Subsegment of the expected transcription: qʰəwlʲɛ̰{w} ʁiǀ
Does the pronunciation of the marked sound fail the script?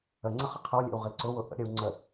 no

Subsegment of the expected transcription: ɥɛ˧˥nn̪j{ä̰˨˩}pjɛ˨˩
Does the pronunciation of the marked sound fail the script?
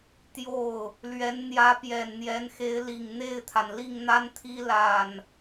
yes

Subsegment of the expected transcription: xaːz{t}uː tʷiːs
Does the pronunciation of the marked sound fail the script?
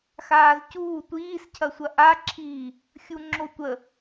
yes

